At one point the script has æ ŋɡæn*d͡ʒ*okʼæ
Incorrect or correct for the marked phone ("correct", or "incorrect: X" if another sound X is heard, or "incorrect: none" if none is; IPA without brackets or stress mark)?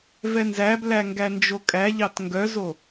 correct